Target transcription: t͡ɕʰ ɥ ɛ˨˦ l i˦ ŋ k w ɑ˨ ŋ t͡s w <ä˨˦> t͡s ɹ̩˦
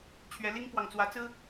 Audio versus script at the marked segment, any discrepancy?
no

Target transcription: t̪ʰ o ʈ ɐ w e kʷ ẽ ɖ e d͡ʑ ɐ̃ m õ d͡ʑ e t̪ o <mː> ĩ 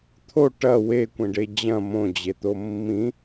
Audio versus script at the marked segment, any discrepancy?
no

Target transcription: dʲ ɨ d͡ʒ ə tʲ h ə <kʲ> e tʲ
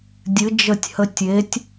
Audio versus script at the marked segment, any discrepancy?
yes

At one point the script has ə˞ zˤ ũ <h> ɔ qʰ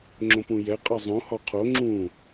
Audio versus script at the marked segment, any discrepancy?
no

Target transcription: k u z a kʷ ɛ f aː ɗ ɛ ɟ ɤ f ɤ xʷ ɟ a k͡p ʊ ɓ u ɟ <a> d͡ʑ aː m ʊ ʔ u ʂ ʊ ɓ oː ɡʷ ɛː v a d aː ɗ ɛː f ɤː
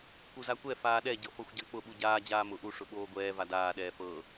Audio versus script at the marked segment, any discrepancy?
yes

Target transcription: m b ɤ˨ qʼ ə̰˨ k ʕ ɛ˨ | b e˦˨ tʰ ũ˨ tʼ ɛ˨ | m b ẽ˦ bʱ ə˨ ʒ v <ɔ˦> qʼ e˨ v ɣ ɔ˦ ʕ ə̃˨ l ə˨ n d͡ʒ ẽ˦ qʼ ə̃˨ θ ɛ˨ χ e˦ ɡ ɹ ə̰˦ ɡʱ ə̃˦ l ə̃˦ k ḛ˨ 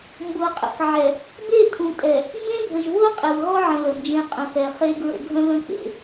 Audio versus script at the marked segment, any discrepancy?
yes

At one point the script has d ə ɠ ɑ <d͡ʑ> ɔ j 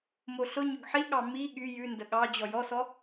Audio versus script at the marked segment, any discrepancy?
no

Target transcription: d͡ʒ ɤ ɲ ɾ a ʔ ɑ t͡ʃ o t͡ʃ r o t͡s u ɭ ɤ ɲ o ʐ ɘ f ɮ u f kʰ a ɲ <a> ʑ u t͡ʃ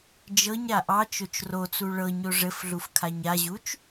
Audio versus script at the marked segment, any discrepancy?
no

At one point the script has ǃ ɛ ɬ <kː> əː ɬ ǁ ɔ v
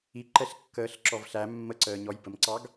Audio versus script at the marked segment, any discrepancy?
no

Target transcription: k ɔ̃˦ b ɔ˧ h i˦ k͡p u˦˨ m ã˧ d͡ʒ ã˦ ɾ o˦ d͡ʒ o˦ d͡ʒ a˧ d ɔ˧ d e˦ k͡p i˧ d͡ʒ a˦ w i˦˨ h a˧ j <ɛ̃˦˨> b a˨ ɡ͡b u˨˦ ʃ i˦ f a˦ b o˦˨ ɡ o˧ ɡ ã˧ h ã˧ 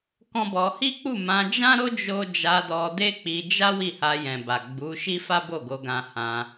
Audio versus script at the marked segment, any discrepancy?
yes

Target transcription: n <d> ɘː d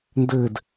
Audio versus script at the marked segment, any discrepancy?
no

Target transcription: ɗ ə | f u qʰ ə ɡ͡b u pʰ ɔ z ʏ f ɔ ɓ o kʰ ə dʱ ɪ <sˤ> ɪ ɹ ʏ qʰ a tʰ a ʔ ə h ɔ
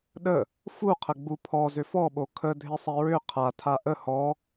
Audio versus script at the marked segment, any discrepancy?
no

